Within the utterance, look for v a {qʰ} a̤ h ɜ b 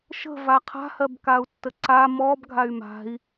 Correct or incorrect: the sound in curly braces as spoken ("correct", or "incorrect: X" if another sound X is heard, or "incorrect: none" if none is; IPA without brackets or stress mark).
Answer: correct